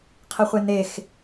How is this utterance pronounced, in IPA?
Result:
qʰ i χʷ e n̪ e x

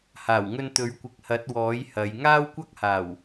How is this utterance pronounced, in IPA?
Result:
h aː˨˩ w ŋ ɵ˧ n t̪ ɵ˨˥ ɥ kʷ ɪ˨ k̚ h ɐ˨˥ t̚ w ɔː˨˥ j h ɐ˨˧ j ŋ aː˥ w kʷ ɐ˥ k̚ h aː˨˩ w

